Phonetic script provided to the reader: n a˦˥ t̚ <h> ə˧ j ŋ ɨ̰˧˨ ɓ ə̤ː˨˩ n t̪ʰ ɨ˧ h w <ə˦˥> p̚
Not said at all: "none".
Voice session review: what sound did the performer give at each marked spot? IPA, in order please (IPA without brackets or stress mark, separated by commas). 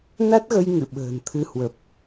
ɣ, ə˨˩